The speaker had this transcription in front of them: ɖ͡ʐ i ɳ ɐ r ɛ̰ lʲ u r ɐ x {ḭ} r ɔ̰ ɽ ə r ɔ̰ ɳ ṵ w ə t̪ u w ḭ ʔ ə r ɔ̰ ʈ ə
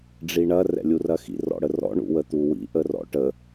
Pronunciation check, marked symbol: correct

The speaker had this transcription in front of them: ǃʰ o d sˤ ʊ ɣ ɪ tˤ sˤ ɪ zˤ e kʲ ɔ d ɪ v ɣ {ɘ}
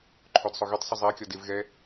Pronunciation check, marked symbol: incorrect: ɛ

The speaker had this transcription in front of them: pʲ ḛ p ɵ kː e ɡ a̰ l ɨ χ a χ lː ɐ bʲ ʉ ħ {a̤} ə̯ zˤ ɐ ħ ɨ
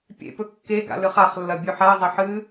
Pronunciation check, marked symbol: incorrect: a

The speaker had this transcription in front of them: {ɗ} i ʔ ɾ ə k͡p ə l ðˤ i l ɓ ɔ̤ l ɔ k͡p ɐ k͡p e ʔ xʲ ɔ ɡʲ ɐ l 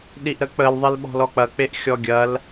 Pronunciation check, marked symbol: correct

